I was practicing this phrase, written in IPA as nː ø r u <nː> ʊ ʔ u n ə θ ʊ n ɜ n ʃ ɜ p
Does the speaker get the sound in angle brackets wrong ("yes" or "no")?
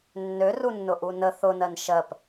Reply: no